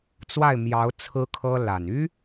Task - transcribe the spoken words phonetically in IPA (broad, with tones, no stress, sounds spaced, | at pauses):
t͡s w a˥˩ ɪ̯ m j ɑ˧˥ ʊ̯ t͡sʰ ɹ̩˥ kʰ ɤ˥ l a˨˩ n y˥